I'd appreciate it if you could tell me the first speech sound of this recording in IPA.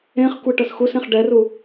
ẽ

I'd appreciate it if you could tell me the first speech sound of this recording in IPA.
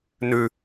n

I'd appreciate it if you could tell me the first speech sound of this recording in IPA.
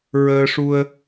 ɹ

